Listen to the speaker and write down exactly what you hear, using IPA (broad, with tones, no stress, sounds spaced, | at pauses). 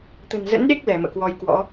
t̪ ə̤˨˩ n z ə̰˧˥ n ɗ e˦˥ k̚ l ɛ˧˩ m ə̰ː˧˨ k w ɔ˧ j k w ɔ̰˧˥